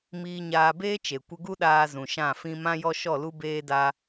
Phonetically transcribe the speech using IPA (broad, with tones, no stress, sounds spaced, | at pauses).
m iː˧ ɲ aː˧ b eː˦ t͡ʃ e˨ kʷ ə˧ ɡ u˦ ɗ aː˧ z ũ˨ ʃ ã˦˨ f ĩ˦ m ã˦ j ɔ˦ ʃ ɔ˦˨ l u˦ b eː˦ d a˦